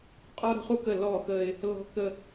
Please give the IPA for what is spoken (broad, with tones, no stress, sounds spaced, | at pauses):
qʼ ɔ˦ ɾ ə̤˦ χ u˦ k ə˦˨ l ɔ˦˨ x ə˦ ɪ̯ | l ɔ̤˦ k ə˦